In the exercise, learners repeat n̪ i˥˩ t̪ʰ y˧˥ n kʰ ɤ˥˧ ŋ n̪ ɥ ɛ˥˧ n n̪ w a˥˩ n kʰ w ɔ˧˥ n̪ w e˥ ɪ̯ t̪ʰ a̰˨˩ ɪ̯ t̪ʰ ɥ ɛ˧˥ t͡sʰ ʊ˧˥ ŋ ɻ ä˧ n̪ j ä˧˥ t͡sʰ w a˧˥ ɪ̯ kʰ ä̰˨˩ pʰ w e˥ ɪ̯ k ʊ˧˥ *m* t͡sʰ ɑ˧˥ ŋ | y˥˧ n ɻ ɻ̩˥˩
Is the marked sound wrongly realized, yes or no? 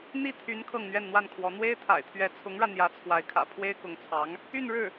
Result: yes